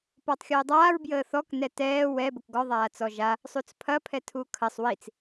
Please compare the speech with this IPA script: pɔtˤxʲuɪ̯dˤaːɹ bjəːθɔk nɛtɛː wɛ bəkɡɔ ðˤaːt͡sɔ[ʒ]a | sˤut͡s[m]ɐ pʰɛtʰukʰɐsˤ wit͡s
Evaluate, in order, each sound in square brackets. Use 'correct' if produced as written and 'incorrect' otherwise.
correct, incorrect

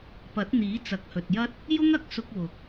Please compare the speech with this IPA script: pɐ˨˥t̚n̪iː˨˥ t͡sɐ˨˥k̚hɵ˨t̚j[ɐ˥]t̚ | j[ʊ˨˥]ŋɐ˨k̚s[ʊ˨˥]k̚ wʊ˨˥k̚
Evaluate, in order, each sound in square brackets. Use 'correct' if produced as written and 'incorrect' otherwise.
correct, incorrect, incorrect

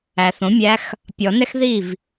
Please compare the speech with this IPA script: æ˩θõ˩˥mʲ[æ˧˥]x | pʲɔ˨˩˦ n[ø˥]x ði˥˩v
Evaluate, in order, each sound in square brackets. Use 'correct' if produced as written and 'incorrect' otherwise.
correct, incorrect

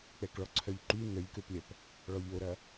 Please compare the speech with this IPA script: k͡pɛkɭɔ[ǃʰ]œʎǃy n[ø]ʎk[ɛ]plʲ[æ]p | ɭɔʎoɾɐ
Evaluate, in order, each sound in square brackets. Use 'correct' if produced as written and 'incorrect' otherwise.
incorrect, incorrect, incorrect, incorrect

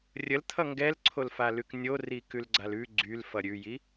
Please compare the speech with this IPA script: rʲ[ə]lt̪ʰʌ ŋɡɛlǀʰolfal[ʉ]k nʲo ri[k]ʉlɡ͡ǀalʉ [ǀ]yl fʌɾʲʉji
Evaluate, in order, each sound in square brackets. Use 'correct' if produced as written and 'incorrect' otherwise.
correct, correct, correct, incorrect

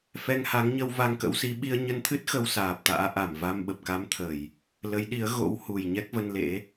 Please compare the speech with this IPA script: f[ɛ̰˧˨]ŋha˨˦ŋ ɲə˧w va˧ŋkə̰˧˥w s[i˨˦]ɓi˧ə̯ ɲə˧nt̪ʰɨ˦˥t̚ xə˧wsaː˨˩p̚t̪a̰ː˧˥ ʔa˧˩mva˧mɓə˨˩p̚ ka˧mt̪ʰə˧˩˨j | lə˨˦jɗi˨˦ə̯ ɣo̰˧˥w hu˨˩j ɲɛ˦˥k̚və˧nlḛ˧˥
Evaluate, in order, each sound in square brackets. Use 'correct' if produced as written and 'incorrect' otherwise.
incorrect, correct

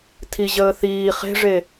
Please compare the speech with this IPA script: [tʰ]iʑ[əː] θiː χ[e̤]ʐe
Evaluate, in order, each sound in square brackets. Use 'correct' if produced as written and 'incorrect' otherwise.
correct, correct, correct

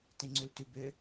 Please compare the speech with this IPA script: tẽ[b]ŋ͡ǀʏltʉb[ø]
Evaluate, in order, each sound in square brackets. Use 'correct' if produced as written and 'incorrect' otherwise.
incorrect, correct

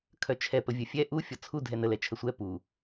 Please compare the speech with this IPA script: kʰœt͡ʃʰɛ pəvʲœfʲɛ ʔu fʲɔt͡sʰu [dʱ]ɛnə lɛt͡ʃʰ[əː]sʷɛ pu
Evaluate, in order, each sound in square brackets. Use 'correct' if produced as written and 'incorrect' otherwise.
correct, incorrect

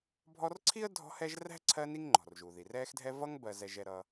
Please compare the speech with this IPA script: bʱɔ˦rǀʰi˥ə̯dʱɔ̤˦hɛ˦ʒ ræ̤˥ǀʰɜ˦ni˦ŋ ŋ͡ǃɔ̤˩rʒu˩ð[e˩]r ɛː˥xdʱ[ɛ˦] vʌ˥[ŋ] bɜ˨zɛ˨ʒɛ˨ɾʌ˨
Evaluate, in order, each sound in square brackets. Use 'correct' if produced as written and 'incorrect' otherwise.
incorrect, incorrect, correct

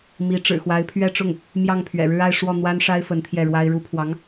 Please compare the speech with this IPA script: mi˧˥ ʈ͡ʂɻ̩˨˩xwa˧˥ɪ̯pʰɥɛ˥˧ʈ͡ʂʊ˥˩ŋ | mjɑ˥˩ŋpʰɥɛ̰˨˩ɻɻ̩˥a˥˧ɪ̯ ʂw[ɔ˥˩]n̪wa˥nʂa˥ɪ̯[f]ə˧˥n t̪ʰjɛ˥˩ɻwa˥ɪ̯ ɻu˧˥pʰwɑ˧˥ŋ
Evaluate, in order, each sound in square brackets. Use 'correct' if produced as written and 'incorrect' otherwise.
correct, correct

